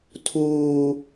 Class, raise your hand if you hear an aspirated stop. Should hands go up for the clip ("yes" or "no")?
yes